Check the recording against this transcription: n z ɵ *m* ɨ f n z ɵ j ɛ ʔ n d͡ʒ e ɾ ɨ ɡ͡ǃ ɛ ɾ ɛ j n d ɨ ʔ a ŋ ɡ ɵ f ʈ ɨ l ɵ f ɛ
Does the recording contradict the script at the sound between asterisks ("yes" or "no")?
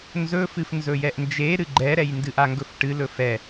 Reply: yes